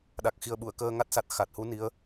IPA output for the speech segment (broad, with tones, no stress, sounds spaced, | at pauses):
ɗ a˨˩ k̚ x i˨˩ ə̯ ɓ u˨˩˨ ə̯ k əː˧ ŋ a˦˥ t̚ s a˨˩ t̚ x a˨˩ t̚ h u˧˥ n i˧˥ ə̯